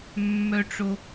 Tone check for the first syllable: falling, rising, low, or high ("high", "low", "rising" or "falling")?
high